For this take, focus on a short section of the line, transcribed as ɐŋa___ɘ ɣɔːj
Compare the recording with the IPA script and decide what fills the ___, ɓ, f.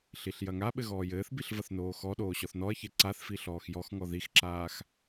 ɓ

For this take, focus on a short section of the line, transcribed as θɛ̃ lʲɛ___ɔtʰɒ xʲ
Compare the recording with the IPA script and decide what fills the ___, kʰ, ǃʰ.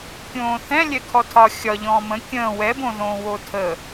kʰ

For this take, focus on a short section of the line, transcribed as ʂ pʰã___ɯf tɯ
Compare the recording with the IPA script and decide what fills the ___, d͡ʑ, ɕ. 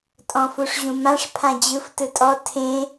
d͡ʑ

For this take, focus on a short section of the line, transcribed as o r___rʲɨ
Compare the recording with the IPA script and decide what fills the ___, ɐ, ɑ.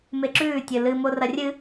ɐ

